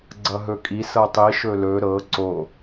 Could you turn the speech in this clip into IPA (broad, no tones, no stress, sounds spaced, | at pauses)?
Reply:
ɡ͡ǀ ʌ ɦ ɵ kʼ i s ɤ tˤ i ʃ ɵ l ɵ ɾ ɤ ǀ o